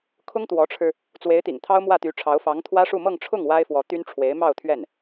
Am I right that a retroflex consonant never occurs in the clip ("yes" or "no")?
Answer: no